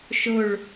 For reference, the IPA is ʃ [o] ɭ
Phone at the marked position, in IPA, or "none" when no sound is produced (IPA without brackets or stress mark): o